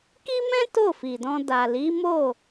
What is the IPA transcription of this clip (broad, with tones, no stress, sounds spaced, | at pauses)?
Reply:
k i˦ m ɛ̃˦ t o˦˨ f i˨ d ɔ̃˧ d a˨ l i˨˦ m o˦˨